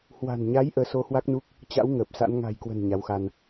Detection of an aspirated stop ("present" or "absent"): absent